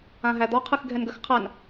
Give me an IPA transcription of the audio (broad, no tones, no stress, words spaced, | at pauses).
ãɦæd̪ɔ qʰɯxɡʱɛnɡəx qʰan